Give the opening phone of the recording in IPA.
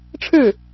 ʈ͡ʂʰ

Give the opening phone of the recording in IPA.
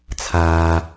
t͡sʰ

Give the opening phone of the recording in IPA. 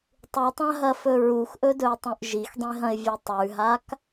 tˤ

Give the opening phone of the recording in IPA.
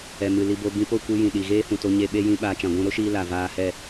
ɛ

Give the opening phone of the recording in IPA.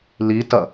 l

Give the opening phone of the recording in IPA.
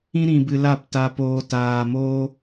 ĩ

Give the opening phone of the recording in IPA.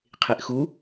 qʰ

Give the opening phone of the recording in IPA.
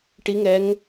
ʈ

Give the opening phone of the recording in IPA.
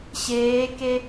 ɕ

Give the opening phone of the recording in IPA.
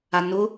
a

